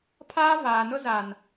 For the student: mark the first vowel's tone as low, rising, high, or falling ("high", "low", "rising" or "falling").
high